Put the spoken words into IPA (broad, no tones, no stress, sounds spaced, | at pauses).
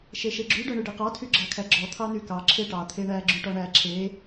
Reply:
ʃ e ʃ e ɡ͡ǁ y ɖ œ ɳ y ɖ e q ɑ tʰ y ɡ͡ǁ ɑ kʰ æ ɡ͡ǁ ɔ t̪ʰ ɑ n y k ɑ ǁʰ e ʈ ɑ t̪ʰ e ɳ æ ɡ͡ǁ y ʈ ɔ ɳ æ ǁʰ e